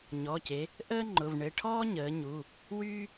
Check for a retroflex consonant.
present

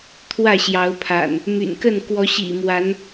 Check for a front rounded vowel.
present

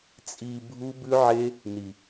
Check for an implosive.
absent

